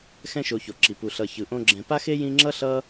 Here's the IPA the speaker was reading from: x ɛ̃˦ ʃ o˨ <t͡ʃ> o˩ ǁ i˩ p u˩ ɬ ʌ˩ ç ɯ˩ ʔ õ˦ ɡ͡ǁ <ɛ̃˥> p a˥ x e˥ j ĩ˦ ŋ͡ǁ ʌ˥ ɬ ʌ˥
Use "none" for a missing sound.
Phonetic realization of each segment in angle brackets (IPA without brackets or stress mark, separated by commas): ç, ɛ̃˨